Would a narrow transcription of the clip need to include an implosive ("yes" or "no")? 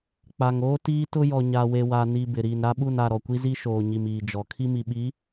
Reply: yes